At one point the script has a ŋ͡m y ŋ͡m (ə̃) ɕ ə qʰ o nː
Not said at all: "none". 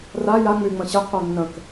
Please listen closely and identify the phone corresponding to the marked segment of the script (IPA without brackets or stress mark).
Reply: ə̃